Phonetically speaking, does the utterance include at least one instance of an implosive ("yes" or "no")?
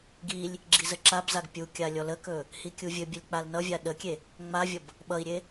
yes